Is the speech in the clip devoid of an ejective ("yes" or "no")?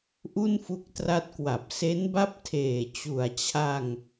yes